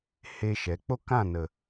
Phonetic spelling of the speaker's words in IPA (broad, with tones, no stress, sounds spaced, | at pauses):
h e˦ ʃ ɛ˨˦ k͡p o˦ k ã˦˨ n ə˨